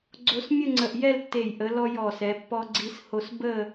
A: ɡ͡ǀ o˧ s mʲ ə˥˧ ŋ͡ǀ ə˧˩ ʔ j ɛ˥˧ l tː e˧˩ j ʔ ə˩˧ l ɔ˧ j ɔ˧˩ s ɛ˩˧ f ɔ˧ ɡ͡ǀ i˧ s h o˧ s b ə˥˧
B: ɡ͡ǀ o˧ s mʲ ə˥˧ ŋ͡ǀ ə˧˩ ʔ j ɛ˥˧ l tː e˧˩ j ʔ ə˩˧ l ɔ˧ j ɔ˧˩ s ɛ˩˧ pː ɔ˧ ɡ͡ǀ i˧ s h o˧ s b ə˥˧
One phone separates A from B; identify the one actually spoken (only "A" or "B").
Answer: B